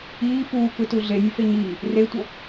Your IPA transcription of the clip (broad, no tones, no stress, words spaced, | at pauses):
iː puːkɯtu ɮenʲufe ɲiː | retʷʌ